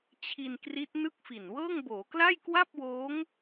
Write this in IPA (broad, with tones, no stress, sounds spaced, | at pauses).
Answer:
t͡ɕʰ i˧ n k r i˦˥ t̚ n ɯ˥˩ k̚ f i˨˩ n w ɤː˥˩ ŋ b oː˩˦ k l a˥˩ j k w a˥˩ p̚ w oː˦˥ ŋ